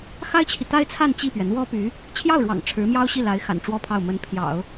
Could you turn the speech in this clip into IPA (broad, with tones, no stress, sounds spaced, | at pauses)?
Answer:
x a˥ ɪ̯ t͡ɕʰ i˨ t̪ a˥ ɪ̯ t͡sʰ a˥˧ n t͡ɕ i˥˩ p ɥ ɛ˩ n̪ w ɔ˥ p y˧˥ | t͡ɕʰ j ɑ˥˩ ʊ̯ ɻ w ɑ̰˨˩ ŋ ʈ͡ʂʰ ɻ̩˧˥ m j ɑ˥ ʊ̯ ɕ i˥˩ l a˧˥ ɪ̯ x a̰˨˩ n ʈ͡ʂ w ɔ˥ pʰ ɑ˥˩ ʊ̯ m ə˧˥ n pʰ j ɑ̰˨˩˦ ʊ̯